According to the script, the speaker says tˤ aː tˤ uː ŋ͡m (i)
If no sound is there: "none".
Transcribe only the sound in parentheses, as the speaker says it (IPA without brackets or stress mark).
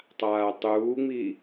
i